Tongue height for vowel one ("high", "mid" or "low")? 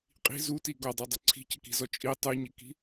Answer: high